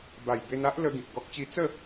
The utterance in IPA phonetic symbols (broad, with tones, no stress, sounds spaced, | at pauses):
b a˨˩ j b e˧ n a˦ ʔ l ə˧ ɡ ĩ˨ k̚ ɡ ɔ˦ k̚ t͡ɕ i˦ t͡s ə˥˧